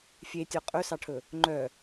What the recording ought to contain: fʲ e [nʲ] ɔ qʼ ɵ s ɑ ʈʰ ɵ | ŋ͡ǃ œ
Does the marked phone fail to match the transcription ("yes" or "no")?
yes